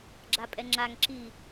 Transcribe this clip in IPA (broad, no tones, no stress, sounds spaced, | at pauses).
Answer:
ɡ͡ǁ a pʼ ɛ ŋ͡ǁ a ŋ ǁ i